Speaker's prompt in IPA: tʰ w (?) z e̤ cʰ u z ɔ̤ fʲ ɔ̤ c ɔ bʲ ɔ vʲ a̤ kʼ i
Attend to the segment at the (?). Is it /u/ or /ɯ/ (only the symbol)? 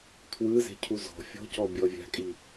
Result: ɯ